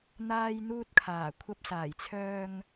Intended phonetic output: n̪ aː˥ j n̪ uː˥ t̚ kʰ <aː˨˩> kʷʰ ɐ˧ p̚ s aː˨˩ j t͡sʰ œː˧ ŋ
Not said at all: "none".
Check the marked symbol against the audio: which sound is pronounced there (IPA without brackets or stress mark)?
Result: aː˨˩